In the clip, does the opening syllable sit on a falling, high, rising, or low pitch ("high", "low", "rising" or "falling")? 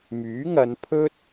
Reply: rising